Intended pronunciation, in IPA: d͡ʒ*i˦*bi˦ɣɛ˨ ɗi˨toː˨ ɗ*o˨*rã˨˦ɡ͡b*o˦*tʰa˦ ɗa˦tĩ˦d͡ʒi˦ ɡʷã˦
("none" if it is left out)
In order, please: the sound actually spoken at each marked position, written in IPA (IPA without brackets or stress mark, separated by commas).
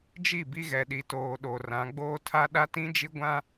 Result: i˦˨, o˨, oː˦